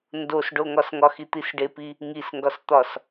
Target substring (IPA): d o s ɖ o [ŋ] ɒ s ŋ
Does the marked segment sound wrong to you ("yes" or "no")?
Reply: no